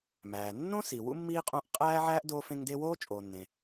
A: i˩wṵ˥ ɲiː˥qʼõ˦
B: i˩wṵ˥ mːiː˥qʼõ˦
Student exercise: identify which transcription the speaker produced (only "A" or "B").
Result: B